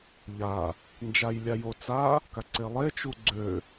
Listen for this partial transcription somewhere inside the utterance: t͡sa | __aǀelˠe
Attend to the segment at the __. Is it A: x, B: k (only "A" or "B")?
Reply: B